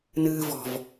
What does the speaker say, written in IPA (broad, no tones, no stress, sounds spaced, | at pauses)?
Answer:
n ɨː v ɔ̤ v